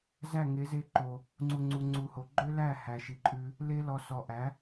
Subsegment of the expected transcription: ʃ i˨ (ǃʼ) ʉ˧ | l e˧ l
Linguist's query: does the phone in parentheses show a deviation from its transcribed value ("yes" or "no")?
no